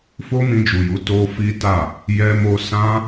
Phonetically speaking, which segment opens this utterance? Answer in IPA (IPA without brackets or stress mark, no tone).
f